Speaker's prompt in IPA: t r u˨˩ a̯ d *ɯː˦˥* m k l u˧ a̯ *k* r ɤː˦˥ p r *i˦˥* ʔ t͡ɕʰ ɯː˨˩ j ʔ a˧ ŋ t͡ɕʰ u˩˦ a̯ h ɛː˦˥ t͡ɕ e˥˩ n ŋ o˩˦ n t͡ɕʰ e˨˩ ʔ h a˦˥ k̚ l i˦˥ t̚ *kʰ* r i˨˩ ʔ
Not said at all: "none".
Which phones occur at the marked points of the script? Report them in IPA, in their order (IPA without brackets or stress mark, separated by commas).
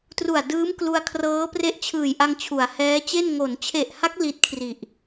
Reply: ɯː˦˥, kʰ, e˦˥, kʰ